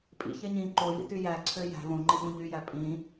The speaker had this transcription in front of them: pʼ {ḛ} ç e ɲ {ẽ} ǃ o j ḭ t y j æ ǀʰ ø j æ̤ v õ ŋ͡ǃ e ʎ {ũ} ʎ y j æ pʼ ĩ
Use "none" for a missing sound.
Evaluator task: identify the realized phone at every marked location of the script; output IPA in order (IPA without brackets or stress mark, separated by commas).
ḭ, ĩ, ũ